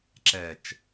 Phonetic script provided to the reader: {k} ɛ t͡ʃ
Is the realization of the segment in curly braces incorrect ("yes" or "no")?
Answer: yes